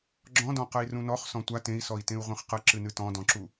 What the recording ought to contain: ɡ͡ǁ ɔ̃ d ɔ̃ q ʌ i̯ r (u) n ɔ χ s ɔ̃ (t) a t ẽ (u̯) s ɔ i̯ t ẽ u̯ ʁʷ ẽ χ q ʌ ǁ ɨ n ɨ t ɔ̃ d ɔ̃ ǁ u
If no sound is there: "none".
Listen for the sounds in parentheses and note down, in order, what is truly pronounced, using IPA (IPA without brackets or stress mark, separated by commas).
ũ, tʷ, i̯